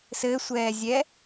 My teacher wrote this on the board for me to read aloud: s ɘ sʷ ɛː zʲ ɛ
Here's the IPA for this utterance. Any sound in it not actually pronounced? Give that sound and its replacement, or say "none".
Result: none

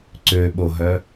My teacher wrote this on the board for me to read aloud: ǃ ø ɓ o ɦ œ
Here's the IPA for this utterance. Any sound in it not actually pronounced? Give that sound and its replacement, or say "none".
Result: ǃ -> ǀ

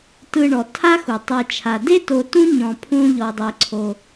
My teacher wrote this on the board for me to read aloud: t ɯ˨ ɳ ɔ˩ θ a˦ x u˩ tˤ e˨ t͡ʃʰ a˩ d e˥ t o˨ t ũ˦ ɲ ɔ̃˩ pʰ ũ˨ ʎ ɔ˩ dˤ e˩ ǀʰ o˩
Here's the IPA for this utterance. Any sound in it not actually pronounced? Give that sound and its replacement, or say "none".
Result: θ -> tʰ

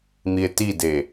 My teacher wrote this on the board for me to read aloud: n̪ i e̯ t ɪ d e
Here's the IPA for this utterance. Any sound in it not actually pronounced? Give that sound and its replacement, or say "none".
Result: ɪ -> i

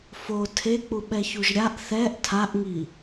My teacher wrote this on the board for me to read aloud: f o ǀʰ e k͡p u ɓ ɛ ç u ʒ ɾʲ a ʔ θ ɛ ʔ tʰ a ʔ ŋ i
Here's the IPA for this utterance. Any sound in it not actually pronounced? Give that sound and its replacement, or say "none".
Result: ǀʰ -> tʰ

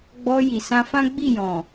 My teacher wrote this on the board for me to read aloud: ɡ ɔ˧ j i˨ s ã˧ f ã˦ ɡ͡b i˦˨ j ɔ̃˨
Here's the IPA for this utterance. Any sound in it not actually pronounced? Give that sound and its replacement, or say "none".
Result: ɡ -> ɡ͡b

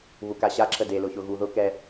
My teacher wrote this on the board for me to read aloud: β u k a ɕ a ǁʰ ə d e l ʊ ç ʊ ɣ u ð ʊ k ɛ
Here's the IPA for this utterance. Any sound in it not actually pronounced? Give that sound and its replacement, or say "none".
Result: none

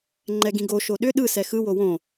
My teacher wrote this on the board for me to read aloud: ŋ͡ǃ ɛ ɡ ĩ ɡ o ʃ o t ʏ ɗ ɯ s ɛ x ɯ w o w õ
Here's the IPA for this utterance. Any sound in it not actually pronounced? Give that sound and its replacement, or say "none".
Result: t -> ɗ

